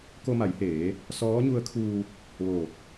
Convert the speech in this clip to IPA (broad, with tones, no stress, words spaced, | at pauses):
ko˧ma˩˧jheː˩˧ | sɔː˧˥ɲu˧˥ə̯kʰuː˧ | ʋoː˧˩t̚